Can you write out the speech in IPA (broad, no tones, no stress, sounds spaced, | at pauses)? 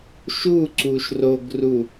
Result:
ʃ u ǀ u ʃ r o ɡ r u